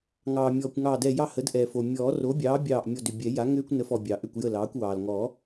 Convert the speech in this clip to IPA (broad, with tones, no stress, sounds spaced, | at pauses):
ŋ ɑː˩ mʲ ɔː˩ kʷ ŋ ɑː˧˩ d ɛ˧˩ j ɑ˥˩ h ə˩˥ d ʔ ɛ˩ f o˩ mʲ ɔː˨˩˦ r o˩˥ bʲ ɑː˩˥ bʲ ɑː˧˩ ʔ mʲ ɔ˧˩ d ʏ˩ bʲ ɛ˨˩˦ j a˩˥ ŋ ʏː˦ kʷ n ə˩˥ f ɔ˩ bʲ ɑ˩ ʔ ʏ˥˩ kʷ j ə˥˩ l ɑː˩˥ kʷ w ɑː˩ l ŋ ɔ˨˩˦